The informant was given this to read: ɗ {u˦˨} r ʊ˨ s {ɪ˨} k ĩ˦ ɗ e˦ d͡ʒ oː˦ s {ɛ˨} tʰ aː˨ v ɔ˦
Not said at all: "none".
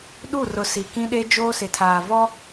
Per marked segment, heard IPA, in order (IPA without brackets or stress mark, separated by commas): u˦˨, i˨, ɪ˨